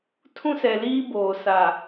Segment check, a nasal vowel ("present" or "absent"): present